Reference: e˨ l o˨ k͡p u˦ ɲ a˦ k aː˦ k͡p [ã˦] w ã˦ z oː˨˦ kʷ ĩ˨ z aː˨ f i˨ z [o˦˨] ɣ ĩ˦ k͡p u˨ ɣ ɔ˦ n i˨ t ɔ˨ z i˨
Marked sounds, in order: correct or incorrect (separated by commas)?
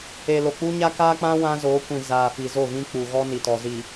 correct, correct